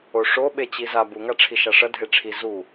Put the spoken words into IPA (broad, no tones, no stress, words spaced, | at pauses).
oʂo ɓet͡ɕiza buŋaʈ͡ʂʰi ʃaʂɐ dʱeʈ͡ʂʰi zu